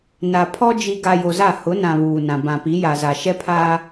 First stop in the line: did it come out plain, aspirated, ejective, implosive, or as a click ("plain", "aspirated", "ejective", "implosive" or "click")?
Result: aspirated